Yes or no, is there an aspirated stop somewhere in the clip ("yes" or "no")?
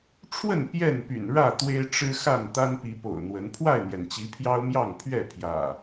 yes